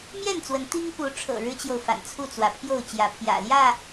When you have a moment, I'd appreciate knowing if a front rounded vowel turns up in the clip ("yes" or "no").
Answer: no